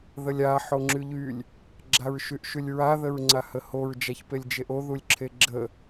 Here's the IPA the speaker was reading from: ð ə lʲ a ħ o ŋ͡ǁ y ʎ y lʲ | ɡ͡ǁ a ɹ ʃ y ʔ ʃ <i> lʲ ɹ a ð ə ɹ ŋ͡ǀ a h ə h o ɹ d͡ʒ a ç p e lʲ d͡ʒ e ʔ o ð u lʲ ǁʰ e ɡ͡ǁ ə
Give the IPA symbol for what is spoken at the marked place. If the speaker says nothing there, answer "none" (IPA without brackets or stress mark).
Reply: y